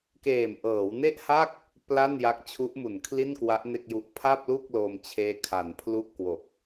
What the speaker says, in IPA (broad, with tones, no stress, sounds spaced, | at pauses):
k eː˨˩ m ʔ ɤː˩˦ w n e˥˩ ʔ h a˥˩ k̚ | p l a˥˩ n j a˦˥ k̚ t͡ɕʰ u˦˥ ʔ m u˨˩ n kʰ l i˥˩ n k w a˦˥ ʔ n e˥˩ k̚ j u˦˥ ʔ pʰ a˥˩ p̚ l u˥˩ k̚ l o˧ m t͡ɕʰ eː˦˥ kʰ a˩˦ n pʰ l u˥˩ ʔ k w o˨˩ k̚